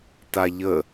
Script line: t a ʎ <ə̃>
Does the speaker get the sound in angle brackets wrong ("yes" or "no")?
yes